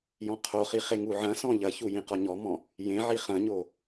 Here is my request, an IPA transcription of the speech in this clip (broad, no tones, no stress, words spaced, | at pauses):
jɔ̃qʰoχi χeŋuʕɐ̃sɔ̃ ʎɐçu jĩqɔɲɔmɔ̃ | jẽʕi χɐ̃ɲo